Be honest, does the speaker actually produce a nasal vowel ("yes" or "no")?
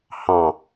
yes